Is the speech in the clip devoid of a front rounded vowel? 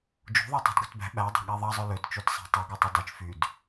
no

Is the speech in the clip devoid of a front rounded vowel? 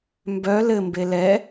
no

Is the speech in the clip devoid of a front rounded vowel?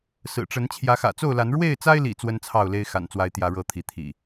yes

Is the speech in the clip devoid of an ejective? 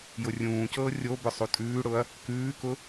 no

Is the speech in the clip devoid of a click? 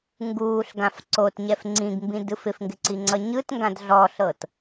no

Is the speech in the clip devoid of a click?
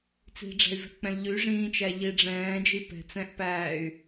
yes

